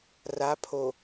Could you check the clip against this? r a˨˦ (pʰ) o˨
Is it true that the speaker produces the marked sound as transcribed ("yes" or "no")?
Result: yes